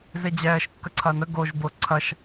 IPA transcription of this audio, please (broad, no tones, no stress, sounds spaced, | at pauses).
z e d͡ʑ ɛː ʃ kː ə ǀʰ ɐː n ə ɡ o ʒ b ʊː ǀʰ ɐ ʃ